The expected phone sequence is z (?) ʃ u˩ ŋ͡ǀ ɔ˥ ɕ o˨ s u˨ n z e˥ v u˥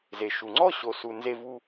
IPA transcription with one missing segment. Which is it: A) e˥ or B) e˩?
B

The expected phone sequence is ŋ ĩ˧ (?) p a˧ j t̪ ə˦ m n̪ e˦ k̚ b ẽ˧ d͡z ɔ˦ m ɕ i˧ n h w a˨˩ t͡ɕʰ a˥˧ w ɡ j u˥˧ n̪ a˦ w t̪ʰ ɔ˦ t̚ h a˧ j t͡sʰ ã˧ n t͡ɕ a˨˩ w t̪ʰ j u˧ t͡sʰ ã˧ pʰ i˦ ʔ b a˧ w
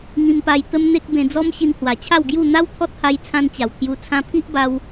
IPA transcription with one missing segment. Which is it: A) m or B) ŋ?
A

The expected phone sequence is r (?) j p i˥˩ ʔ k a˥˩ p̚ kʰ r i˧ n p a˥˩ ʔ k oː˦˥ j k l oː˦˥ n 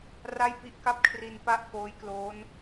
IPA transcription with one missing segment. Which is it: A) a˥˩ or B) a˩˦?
A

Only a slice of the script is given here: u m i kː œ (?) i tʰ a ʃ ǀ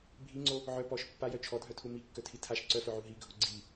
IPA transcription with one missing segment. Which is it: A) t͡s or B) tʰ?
B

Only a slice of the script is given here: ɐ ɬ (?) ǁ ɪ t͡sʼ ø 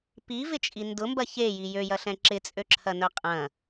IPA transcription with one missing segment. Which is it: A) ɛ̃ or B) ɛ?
A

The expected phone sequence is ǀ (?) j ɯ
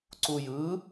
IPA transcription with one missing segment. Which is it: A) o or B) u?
B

